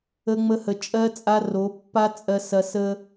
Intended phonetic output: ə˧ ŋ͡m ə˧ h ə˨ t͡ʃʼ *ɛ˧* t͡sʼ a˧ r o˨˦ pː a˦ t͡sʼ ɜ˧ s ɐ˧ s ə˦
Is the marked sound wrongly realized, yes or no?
yes